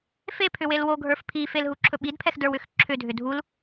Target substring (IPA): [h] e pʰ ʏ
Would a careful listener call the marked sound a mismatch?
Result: yes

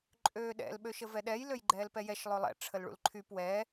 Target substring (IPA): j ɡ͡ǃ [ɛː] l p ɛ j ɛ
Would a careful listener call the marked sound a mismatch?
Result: no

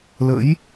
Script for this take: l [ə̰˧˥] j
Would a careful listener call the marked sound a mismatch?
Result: no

